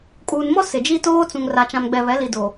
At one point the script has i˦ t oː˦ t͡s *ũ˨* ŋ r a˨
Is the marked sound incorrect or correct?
correct